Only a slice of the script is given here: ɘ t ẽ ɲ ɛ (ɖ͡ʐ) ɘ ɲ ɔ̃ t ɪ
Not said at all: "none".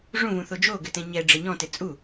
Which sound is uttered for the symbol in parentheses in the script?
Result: ɖ͡ʐ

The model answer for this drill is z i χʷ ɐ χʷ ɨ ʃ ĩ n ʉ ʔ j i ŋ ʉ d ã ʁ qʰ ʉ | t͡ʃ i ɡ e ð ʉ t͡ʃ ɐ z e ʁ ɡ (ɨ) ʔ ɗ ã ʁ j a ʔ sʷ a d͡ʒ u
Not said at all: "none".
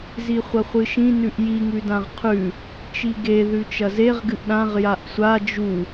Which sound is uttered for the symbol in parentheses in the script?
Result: ɨ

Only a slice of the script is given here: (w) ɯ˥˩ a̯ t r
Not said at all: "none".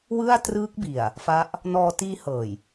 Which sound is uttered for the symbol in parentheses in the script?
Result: w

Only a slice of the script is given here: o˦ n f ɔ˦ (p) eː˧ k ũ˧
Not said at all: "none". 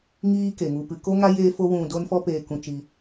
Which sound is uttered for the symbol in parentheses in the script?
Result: p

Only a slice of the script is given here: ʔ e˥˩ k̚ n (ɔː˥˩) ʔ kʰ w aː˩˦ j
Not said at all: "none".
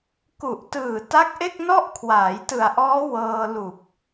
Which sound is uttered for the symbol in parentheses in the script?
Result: ɔ˥˩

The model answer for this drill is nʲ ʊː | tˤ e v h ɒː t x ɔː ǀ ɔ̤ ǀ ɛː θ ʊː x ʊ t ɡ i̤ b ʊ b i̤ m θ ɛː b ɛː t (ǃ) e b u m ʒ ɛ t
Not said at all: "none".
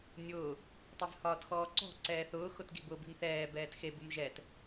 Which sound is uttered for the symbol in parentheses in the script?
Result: x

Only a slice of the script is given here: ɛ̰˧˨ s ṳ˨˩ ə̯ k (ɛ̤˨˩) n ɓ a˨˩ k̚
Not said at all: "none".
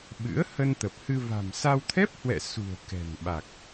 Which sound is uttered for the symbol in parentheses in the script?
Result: ɛ̤˨˩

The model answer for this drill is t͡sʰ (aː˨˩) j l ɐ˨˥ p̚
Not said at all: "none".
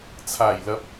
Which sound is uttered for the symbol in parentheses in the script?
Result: aː˨˩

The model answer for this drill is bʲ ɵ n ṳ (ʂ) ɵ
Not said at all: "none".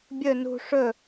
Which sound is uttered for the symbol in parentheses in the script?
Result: ʂ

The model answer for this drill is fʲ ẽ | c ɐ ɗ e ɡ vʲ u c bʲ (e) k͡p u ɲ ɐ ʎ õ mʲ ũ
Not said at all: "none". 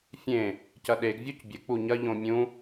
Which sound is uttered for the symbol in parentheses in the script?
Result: ɘ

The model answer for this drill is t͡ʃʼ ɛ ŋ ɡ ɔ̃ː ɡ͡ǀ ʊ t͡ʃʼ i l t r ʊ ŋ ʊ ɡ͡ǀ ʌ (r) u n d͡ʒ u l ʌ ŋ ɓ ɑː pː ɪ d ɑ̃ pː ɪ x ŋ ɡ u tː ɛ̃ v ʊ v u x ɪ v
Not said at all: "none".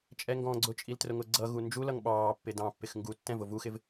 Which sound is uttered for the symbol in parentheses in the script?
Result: ɣ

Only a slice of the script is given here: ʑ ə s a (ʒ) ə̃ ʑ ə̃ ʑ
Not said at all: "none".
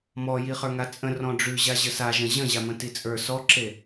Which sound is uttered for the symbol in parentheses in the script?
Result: ʒ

